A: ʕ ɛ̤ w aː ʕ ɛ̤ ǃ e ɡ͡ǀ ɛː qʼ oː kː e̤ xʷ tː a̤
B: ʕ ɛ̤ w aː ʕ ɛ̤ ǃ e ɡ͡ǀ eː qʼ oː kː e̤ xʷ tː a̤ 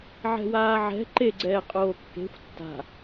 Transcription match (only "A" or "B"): A